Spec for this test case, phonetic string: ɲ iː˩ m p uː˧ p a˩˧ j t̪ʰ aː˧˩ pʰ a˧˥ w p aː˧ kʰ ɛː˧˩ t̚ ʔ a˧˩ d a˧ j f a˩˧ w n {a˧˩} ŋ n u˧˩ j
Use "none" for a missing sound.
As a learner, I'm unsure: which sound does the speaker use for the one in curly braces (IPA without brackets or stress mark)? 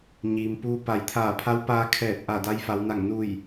a˧˩